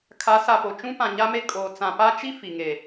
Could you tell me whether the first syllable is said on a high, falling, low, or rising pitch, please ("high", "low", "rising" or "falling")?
rising